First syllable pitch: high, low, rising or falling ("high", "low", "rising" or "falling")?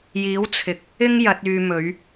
rising